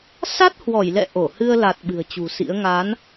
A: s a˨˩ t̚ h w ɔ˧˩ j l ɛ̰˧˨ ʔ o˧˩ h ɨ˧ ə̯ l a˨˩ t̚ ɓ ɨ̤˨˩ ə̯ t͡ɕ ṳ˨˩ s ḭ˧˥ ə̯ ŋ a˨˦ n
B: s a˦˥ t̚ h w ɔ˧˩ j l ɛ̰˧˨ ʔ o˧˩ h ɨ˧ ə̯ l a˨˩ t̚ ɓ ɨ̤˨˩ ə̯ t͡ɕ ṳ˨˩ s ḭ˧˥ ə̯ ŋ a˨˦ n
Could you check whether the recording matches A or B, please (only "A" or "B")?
B